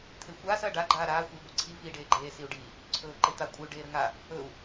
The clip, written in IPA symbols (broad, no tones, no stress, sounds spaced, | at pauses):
t̪ʰ e xʷ aː s ɐː ɖ a ɡ͡ǃ aː ɾ aː xʷ e i̯ ɡʷ ə ǀʰ i v iː ɖ eː ɡ͡ǃ eː s i u̯ ɖ i | ǀʰ ɵː ǃ e t̪ a kʷʼ ə y̯ ɖ eː ɾ ə ŋ a | ɵ u̯